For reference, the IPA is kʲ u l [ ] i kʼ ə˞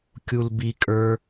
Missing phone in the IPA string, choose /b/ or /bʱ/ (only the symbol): b